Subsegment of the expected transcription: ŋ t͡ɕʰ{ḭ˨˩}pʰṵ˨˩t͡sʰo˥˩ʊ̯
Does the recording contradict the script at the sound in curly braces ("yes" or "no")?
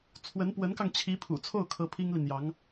yes